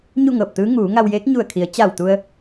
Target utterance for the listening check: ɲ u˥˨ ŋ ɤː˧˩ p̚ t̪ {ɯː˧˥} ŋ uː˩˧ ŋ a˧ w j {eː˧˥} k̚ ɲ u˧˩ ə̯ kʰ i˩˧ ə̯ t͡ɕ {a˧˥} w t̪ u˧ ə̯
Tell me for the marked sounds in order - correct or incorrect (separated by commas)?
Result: correct, correct, incorrect